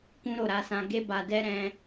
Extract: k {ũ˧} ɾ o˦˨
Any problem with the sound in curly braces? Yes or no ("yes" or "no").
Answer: yes